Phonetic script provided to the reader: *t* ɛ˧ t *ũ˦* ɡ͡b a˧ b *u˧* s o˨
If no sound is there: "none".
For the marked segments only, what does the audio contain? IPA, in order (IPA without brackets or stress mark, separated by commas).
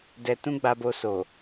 d, ũ˦, o˧